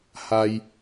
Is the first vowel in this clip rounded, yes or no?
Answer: no